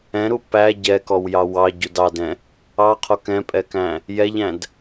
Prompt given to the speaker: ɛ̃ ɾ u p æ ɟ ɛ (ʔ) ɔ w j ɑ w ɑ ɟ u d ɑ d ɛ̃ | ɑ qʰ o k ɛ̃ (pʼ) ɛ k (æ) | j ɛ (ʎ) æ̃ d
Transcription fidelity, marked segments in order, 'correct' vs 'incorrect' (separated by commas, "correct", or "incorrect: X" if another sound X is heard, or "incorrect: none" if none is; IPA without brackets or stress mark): incorrect: k, correct, incorrect: æ̃, correct